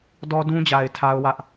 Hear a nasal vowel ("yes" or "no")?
yes